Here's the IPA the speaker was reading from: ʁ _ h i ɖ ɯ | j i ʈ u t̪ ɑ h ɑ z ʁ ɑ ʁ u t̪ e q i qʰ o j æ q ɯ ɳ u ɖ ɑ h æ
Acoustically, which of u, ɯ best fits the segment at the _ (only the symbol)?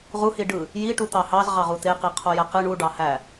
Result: u